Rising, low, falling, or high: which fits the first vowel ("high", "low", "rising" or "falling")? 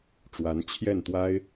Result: rising